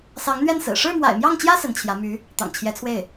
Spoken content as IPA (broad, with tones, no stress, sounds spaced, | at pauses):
s ɑ˧˥ ŋ n̪ ɥ ɛ˥˩ n s ɹ̩˨˩ ʂ ɻ̩˥˩ m w a̰˨˩ ɪ̯ m j ɑ˥˩ ŋ t͡ɕ j ä˥ s ə˧˥ n t͡ɕʰ j ä˧˥ m y˧˥ | t̪ ɑ̰˨˩ ŋ t͡ɕʰ j ɛ˧˥ t͡sʰ w e˥˩ ɪ̯